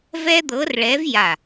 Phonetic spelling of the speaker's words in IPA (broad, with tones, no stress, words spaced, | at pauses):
vɛ˥d̪ɤ˧˥rɭɛ˧˥v ja˧˩